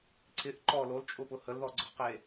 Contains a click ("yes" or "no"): yes